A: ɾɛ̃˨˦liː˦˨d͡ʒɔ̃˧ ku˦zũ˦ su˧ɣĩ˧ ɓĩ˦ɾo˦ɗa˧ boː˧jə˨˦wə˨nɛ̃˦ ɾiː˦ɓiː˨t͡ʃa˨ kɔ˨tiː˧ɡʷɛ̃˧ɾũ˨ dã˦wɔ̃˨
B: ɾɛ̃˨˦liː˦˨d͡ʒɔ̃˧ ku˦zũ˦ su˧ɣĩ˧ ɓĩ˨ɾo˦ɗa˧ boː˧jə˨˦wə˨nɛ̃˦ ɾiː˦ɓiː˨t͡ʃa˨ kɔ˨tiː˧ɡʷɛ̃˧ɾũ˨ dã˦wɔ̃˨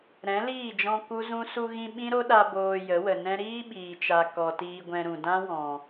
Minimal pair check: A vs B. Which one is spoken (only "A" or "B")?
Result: A